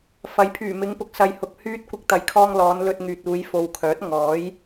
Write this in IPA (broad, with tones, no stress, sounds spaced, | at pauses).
f ɐ˨˥ j pʰ yː˨˩ m ɪ˨˧ ŋ p ʊ˨˥ k̚ s ɐ˨ j h ʊ˨ k̚ h yː˥ t̚ kʷ ɪ˧ k̚ t̪ ɐ˨˥ j kʰ ɔː˧ ŋ l ɔː˨˧ n l ɵ˧ t̚ ŋ yː˨ t̚ uː˨˧ j f o˨ w kʰ œː˨˥ t̚ ŋ ɔː˨˥ j